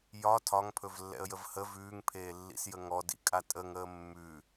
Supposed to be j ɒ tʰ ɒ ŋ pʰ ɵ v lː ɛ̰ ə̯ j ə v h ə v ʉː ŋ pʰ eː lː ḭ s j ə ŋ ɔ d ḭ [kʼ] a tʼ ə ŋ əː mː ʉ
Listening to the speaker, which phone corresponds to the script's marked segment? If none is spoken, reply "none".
kʼ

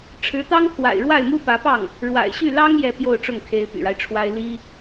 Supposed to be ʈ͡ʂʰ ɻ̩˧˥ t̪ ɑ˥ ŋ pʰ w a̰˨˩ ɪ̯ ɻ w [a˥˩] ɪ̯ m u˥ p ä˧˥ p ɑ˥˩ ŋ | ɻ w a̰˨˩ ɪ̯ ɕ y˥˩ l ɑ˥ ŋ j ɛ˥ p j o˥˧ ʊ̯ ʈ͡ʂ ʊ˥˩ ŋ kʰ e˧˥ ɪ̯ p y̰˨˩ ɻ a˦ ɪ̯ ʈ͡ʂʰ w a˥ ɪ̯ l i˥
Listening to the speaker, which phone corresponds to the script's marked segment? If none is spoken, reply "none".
a˥˩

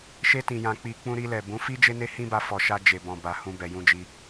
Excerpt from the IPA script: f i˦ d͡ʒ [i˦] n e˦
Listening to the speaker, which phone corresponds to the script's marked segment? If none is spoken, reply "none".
e˦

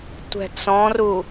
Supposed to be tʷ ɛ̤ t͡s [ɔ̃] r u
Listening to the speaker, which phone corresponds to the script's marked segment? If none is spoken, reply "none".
ɔ̃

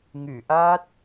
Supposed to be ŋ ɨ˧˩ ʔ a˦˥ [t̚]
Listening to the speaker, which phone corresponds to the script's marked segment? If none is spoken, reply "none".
t̚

